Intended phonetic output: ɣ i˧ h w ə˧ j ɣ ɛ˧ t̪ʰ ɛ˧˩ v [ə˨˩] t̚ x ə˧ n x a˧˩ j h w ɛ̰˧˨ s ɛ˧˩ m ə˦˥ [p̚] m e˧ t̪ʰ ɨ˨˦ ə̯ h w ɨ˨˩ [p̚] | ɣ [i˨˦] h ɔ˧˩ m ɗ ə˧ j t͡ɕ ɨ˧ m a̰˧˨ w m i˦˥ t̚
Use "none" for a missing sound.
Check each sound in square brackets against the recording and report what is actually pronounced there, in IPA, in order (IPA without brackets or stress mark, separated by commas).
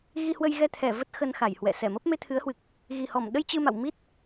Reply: ə˦˥, p̚, k̚, i˨˩